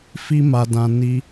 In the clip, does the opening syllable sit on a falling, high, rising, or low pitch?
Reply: high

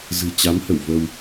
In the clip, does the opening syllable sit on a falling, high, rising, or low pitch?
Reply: low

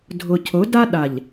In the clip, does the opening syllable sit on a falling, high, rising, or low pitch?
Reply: low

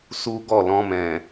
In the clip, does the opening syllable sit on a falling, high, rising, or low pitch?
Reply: high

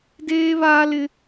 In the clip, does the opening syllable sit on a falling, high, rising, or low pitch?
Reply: high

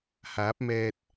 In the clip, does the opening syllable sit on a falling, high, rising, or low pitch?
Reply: rising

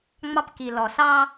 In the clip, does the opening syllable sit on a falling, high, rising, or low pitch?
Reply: high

